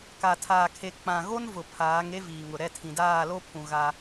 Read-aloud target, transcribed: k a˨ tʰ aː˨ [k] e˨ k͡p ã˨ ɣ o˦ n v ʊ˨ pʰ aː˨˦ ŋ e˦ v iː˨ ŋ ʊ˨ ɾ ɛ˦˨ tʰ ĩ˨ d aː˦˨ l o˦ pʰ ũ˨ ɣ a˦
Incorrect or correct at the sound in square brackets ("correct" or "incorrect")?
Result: incorrect